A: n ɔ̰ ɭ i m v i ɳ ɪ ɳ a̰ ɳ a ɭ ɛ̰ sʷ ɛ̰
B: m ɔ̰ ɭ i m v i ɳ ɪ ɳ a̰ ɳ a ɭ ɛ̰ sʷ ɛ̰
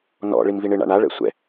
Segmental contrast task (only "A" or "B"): A